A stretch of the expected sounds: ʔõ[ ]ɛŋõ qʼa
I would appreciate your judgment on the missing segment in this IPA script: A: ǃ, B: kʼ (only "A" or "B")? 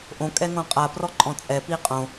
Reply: B